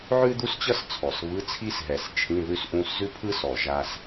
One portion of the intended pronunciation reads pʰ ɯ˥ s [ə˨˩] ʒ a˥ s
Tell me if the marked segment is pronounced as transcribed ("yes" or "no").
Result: no